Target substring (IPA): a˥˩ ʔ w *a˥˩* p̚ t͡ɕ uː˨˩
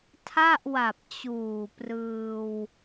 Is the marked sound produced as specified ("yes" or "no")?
no